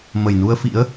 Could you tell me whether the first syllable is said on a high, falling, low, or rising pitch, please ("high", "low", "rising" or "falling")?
low